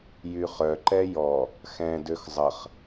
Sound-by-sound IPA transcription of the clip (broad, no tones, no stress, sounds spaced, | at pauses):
j y χ œ ǃ ɛ j ɔ | x ɛ̃ d ø x zˤ ə χ